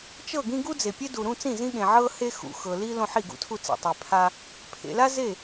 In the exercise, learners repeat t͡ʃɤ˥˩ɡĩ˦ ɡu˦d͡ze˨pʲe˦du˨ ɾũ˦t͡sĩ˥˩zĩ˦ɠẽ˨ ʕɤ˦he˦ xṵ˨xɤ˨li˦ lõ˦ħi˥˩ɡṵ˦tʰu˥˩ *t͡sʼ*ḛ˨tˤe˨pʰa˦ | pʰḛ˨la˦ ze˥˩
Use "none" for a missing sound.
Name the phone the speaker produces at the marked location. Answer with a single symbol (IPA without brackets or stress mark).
t͡s